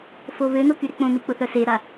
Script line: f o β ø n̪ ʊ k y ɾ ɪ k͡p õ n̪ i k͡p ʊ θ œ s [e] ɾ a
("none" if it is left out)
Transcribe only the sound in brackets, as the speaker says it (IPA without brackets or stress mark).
e